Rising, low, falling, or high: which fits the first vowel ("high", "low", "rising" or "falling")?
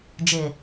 low